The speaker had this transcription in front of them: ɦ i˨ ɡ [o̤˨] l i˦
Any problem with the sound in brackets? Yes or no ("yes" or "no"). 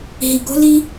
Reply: yes